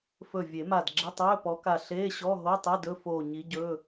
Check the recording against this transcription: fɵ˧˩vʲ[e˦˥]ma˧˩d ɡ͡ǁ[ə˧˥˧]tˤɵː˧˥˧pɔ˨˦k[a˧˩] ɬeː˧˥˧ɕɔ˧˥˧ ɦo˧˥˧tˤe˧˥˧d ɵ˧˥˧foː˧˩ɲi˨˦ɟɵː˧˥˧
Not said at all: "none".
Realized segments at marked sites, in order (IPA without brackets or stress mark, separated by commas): e˨˩˦, ə˧˥˧, a˧˩